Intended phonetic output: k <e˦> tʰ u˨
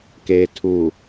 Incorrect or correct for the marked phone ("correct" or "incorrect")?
incorrect